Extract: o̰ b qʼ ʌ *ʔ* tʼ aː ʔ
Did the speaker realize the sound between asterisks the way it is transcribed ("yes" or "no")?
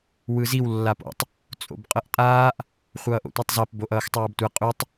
yes